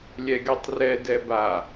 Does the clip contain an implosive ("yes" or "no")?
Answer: no